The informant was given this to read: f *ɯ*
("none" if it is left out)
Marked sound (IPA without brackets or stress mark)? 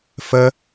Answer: ə